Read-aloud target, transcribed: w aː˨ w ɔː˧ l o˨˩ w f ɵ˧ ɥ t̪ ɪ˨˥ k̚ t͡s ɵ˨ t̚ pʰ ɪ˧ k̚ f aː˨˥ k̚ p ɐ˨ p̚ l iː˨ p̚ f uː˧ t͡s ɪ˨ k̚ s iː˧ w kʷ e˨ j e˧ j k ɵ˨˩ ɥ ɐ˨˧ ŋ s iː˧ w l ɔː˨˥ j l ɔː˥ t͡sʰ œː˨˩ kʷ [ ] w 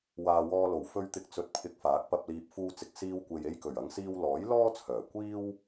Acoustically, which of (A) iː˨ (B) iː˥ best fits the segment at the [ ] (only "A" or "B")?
B